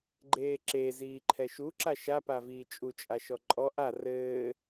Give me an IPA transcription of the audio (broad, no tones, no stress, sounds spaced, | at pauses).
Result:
ɡ͡ǃ eː ǁ e z iː ǃʰ ɛ ʃ u ǁ a ʃ a p a v iː t͡ʃʼ u t͡ʃʼ a ʃ ɔ ǃʼ ɔ ʔ a r ɘː